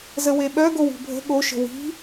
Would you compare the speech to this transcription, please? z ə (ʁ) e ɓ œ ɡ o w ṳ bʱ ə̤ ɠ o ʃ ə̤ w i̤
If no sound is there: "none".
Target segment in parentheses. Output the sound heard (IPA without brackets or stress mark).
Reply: w